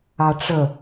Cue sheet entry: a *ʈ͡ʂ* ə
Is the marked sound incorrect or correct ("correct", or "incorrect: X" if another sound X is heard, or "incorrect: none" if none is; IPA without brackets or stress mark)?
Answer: correct